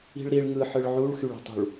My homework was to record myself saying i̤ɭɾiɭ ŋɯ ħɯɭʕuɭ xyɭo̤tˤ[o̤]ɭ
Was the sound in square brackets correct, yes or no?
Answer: no